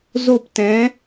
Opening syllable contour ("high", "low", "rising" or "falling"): falling